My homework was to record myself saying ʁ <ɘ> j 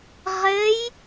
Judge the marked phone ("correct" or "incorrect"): correct